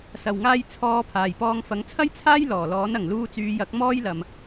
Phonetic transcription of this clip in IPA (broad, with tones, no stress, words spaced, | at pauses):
sɐ˨˩wŋaː˧j t͡sʰɔː˨˧ pʰaː˨˩jpɔː˧ŋfɐ˨˥ŋ t͡sʰɐ˥jt͡sʰaː˥j lɔː˨˩lɔː˨˥nɐ˨˩ŋ luː˧t͡syː˨˧jɐ˨˥k̚ mɔː˥jlɐ˨m